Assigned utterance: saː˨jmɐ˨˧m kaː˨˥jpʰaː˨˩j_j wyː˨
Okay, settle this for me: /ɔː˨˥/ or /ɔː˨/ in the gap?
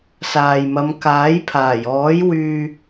ɔː˨˥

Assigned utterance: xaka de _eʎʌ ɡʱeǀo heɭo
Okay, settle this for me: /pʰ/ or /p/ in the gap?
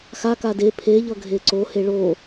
pʰ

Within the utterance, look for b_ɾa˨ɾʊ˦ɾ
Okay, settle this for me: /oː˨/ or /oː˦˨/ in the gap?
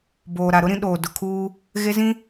oː˨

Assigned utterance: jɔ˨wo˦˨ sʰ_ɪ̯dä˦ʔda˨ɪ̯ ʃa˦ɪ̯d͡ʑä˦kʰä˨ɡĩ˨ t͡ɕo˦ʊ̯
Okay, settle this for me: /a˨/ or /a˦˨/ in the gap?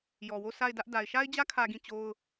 a˦˨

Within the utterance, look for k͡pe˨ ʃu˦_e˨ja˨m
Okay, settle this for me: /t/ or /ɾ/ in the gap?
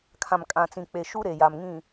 ɾ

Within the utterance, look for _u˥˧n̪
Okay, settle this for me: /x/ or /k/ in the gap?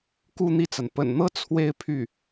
k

